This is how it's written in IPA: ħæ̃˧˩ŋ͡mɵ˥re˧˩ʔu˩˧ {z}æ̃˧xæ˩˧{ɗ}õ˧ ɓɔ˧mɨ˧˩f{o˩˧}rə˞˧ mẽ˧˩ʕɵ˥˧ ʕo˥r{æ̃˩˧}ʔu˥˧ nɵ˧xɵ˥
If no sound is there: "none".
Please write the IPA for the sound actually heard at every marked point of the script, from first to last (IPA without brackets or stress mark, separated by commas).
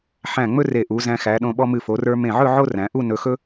z, ɗ, o˩˧, æ̃˩˧